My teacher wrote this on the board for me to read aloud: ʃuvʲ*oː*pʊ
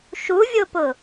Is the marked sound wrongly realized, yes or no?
yes